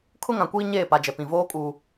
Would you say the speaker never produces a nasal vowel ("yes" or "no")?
no